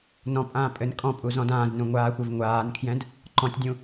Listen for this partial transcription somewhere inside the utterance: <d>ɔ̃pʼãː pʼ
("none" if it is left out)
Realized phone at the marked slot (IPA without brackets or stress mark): n